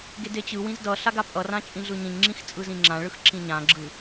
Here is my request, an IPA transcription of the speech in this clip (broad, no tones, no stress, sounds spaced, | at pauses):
ɡ e d e t͡ɕ ɯ w ĩ z d ʌ ɬ a ɡ a pʼ ʌ r ã t͡ʃʼ ĩ ɮ ɯ ɲ ĩ ɲ ŋ͡ǁ ĩ x t͡sʼ ɯ z ĩ ŋ͡ǁ ã ɭ ɯ x ǁ ĩ ɲ ã ɡ͡ǁ ɯ